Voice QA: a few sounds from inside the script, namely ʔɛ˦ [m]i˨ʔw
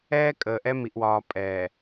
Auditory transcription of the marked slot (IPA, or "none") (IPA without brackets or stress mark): m